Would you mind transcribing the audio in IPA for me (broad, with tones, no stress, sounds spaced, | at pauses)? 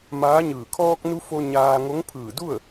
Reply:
m aː˧˥ ɲ ɯː˧˩ kʰ ɔː˧ k̚ n u˧ f o˧ ɲ aː˧ ŋ o˧˥ ŋ pʰ ɯː˧˩ d u˥˨ ə̯